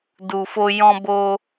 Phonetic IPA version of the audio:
d u˨ f o˧ j ɔ̃˧ b o˧

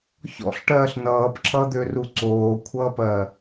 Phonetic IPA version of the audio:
ç ɔ̰ ɬ ʈ ɜː ɬ n ʌː p ǁ ʌ d̪ ø r u ǀ oː kʷʰ ʌː p ɜ

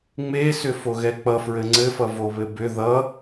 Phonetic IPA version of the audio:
ŋ͡m e s ʏ f o ɣ ɛ k͡p ʌ f ɹ ɘ ŋ͡ǀ ɘ f ʌ v o β ɘ b ʏ ð ʌ

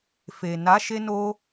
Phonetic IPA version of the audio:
f e˨ n a˨˦ ʃ e˧ n o˧

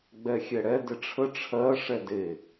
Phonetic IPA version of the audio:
ɡ͡b ɛ xʲ ɛ ɽ ɛ d ɪ ʈ͡ʂʰ ə ʈ͡ʂʰ ɜ ʂ ɛ d e

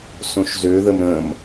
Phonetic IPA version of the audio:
s õ ʃ z ø ð ə m ɾ ə̃ m

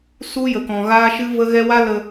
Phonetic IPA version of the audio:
s u˦ j ə˨ k ɔ̃˨ ɣ aː˦ ʃ ɨ˦ v ə˦ ɣ ɛ˦ w a˦ l ə˧

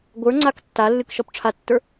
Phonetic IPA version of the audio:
ɡʷ ə˞ ŋ͡ǀ a k tː a lː ɨ k ʃ ɔ p ʈ͡ʂʰ a tː ə˞

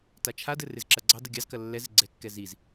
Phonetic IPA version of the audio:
t a t͡ʃʰ a d ɘ r ɪ z ǁ ɐ ɡ͡ǀ ɑ d ɘ ɡʲ ɑ z k ɐ lː ɛ z ɪ ɡ͡ǀ ɛ kː ɛ z i z

